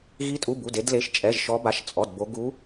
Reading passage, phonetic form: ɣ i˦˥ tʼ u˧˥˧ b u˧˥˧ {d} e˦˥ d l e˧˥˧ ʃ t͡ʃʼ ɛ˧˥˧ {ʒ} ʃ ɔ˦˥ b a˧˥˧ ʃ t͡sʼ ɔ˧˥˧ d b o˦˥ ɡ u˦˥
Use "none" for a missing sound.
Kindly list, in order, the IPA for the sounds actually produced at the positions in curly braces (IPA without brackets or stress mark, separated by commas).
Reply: d, ʒ